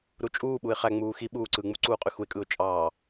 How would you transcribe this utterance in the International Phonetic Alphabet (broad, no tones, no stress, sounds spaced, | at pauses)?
ɾ u t͡ʃʼ uː ɓ u ɪ̯ χ æ ŋ͡m uː x i ɓ uː ǀ ɯ ŋ͡m u ǀ uː qʼ y x u ɪ̯ kʼ ɯ ʊ̯ t͡ʃʼ ɑ